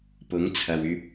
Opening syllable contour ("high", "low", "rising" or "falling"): rising